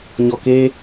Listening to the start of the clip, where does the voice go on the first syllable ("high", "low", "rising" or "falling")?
low